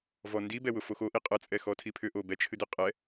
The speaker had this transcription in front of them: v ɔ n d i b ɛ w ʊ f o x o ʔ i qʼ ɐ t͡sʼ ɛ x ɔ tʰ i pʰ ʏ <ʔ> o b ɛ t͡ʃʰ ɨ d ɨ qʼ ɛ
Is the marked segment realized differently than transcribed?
no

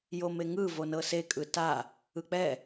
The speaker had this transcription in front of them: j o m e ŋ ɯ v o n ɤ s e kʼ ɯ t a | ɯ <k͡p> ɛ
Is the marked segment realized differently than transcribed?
no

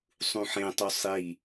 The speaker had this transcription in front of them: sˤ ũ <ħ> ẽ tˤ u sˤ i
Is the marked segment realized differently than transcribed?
no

